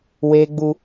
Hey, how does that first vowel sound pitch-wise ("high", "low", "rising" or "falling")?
high